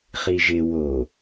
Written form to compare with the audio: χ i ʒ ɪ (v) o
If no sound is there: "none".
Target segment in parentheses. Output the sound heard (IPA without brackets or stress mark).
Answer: w